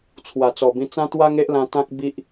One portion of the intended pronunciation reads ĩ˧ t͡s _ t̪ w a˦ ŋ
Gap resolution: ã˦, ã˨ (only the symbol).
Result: ã˦